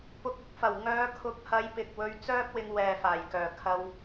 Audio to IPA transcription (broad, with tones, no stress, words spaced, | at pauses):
pʊ˨k̚ɪ˨˥k̚fɐ˨˩w ŋœː˨˧kʰʊ˨˥k̚hɐ˨˧jpɪ˨k̚ wɵ˧ɥt͡sœː˥k̚wɪ˧ŋwɛː˨ faː˨˩jkœː˨˩ kʰɐ˧w